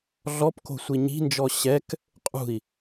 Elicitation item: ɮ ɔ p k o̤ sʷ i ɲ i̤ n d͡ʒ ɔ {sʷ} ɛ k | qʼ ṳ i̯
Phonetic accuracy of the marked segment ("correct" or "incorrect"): incorrect